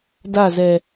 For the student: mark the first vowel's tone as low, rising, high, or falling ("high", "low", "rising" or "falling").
falling